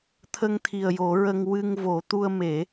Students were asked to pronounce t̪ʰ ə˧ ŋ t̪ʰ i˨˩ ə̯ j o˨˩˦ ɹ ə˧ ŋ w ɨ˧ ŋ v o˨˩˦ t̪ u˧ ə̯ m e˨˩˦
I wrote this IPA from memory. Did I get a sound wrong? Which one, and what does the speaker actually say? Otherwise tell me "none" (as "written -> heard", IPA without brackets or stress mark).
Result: none